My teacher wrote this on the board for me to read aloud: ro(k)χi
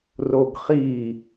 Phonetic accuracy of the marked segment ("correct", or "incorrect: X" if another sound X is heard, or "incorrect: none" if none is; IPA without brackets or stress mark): incorrect: ɡ